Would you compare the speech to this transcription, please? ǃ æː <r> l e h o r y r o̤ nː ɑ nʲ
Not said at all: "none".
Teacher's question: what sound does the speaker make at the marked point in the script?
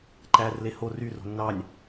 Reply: r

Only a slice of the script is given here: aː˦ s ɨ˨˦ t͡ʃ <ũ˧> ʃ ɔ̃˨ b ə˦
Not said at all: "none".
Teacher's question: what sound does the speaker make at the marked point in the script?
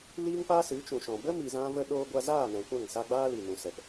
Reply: ũ˨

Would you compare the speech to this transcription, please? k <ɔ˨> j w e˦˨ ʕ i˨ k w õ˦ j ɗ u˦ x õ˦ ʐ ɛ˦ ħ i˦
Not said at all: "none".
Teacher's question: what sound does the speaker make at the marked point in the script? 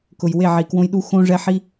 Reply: ʊ˨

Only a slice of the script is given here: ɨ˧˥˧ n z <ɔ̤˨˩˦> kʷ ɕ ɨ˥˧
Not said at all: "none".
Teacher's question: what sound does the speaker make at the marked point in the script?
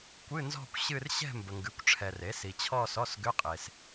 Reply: ɔ̤˥˧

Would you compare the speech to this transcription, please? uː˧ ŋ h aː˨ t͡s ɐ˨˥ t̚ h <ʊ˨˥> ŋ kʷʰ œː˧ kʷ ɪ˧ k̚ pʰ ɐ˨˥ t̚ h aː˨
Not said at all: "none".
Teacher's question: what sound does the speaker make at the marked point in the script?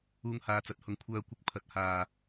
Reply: ʊ˨˥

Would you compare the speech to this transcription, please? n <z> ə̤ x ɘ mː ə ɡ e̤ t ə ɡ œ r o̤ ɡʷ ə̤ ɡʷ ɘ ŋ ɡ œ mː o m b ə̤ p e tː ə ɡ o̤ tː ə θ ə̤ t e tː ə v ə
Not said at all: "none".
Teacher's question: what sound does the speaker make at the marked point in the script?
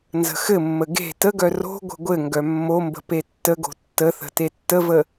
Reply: z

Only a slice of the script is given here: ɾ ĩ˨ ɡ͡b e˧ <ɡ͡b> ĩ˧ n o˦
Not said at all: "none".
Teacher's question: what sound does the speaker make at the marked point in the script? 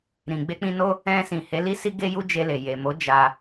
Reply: k͡p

